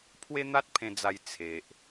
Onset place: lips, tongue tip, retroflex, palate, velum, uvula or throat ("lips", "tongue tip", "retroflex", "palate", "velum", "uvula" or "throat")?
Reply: lips